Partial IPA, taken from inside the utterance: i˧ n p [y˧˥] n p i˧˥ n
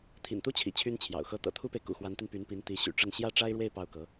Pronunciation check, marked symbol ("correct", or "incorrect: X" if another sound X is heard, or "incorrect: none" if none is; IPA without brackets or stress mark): correct